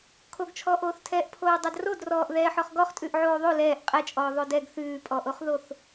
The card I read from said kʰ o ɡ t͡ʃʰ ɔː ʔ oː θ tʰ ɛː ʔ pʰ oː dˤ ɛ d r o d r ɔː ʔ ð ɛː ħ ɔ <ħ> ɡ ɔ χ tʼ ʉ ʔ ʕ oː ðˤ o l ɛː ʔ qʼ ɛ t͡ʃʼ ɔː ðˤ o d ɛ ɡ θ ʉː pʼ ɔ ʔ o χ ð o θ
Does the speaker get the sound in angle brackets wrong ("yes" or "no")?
yes